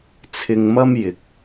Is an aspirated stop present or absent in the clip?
present